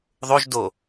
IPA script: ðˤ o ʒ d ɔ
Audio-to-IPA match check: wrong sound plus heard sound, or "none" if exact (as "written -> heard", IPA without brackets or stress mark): ɔ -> o